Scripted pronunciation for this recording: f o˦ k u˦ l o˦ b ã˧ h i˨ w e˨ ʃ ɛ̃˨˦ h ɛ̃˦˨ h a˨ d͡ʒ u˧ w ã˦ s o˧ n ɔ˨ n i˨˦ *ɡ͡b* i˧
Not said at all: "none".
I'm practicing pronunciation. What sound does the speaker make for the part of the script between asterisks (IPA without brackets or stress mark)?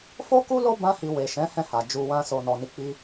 k͡p